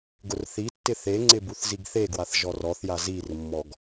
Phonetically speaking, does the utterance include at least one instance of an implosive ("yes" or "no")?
no